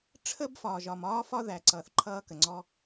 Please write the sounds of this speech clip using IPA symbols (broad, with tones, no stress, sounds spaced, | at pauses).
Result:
ʈ͡ʂʰ ə˥ b f ɒː˩ ʒ ɒ˩ m ɒː˥ f ɒ˥ ð æ˩ ǀ ʌː˩ θ ǃʰ ʌː˥ k ə˩ ŋ͡ǀ ɔ˥